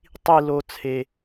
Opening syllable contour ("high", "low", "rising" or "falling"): low